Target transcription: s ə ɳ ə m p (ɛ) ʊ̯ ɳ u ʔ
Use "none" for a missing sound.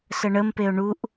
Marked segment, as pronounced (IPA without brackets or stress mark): e